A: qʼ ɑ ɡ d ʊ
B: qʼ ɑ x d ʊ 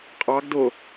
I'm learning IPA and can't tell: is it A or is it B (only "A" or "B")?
A